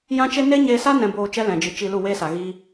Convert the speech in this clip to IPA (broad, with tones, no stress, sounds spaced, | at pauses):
j ã˦ t͡ʃ e˦ n e˦ ɲ eː˧ s a˦ n ɛ̃˧ b oː˧ t͡ʃ ɛ˦ l ɛ̃˨ d͡ʒ ɨ˨˦ t͡ʃ i˧ l u˦˨ w eː˦ s a˨ ɣ iː˦